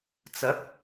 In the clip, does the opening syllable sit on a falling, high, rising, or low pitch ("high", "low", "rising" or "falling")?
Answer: rising